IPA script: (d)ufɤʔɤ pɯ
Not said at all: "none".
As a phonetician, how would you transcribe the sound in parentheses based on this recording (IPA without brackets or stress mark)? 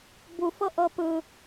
b